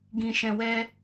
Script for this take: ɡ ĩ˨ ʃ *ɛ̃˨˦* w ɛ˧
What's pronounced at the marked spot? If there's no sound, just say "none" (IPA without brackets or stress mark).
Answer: ɛ̃˨